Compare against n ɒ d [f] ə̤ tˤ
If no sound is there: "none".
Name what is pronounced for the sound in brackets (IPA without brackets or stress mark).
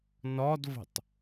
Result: v